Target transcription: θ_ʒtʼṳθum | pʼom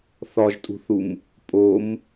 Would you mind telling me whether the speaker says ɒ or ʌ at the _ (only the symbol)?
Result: ɒ